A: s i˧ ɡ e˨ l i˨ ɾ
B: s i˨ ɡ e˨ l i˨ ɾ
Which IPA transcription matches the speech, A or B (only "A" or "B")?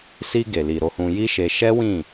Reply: A